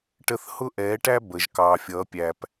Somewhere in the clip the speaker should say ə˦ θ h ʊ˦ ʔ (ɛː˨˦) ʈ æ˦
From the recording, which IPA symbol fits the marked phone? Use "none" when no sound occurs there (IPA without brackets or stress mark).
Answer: ɛː˨˦